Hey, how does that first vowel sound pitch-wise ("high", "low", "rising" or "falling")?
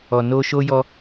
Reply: low